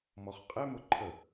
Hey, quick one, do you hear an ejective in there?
yes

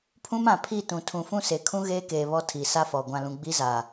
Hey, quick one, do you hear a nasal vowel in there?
yes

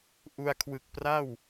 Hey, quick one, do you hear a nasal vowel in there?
no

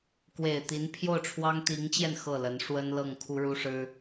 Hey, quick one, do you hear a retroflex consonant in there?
yes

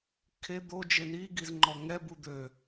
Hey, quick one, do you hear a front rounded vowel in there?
yes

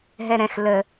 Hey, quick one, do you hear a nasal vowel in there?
yes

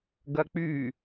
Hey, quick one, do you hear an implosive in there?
no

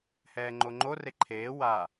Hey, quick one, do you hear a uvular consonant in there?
no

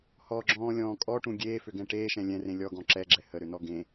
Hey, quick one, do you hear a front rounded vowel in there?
yes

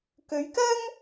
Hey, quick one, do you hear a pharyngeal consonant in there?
no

